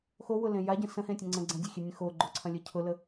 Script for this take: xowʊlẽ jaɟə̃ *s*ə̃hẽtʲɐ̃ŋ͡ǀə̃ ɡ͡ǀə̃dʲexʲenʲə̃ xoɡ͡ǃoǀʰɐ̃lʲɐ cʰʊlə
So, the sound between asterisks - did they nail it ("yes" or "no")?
yes